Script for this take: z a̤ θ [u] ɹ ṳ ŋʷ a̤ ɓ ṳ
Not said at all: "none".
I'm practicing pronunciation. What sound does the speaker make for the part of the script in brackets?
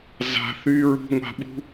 y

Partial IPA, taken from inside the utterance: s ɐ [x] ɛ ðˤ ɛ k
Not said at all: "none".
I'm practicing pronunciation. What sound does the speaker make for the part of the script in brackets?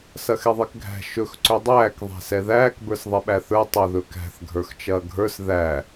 x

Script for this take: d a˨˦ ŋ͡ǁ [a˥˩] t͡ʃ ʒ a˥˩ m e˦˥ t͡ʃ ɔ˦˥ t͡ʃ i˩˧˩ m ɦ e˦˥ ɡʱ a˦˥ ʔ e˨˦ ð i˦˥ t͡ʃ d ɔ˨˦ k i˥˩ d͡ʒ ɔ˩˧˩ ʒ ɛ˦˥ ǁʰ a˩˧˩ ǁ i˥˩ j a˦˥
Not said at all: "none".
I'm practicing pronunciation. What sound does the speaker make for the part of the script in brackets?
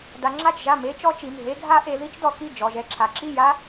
a˥˩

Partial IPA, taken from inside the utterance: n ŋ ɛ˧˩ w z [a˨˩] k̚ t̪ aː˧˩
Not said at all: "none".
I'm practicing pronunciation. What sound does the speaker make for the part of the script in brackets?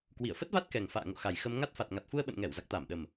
a˨˩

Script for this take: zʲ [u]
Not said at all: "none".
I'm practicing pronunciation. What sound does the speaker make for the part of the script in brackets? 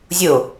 o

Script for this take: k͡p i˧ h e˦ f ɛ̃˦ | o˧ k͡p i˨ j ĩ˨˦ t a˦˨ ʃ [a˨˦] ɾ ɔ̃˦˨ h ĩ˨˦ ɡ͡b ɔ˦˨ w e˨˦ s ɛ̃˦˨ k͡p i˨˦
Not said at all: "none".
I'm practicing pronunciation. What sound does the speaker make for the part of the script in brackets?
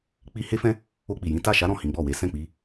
a˨˦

